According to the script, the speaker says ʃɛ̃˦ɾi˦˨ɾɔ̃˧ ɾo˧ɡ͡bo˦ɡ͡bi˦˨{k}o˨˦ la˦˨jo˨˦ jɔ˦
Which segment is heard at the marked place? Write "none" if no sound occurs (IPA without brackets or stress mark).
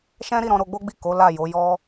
k